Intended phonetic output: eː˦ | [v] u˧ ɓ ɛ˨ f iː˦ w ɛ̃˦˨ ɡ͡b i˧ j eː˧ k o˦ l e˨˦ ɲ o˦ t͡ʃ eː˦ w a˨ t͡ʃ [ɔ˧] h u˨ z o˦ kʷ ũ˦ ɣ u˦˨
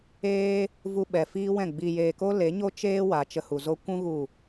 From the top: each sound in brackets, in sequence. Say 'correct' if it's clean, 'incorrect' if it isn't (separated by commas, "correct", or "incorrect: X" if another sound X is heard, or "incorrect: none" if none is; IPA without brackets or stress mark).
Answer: correct, incorrect: ə˧